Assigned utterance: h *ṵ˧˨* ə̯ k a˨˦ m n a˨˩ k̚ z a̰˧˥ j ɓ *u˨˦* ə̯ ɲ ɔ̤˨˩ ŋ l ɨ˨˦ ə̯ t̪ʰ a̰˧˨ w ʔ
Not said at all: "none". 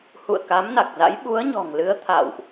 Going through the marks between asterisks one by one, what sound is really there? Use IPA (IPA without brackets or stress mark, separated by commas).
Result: ṵ˧˨, u˨˦